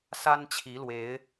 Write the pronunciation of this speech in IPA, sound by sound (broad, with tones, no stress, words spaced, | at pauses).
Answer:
sa˦nt͡ɕʰi˨˦lwe˨˦ɪ̯